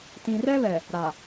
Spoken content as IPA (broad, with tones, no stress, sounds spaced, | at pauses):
t ĩ˨ r ɛ˦ β ɛ˨ | ɾ a˨